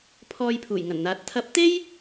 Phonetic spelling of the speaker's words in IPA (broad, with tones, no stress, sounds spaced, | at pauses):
pʰ ɔː˧ j pʰ uː˨˩ j ŋ ɐ˨˩ n n̪ aː˨˥ t̚ t̪ʰ ɐ˨˥ p̚ t̪ e˥ j